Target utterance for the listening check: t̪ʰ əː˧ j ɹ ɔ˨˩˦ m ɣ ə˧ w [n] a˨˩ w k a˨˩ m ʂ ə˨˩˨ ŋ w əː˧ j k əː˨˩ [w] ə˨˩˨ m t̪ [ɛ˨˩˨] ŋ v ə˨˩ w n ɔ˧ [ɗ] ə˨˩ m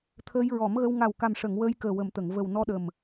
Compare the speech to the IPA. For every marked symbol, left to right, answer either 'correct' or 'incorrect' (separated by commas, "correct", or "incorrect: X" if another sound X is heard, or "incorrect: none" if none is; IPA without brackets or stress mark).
incorrect: ŋ, correct, incorrect: ə˨˩˨, correct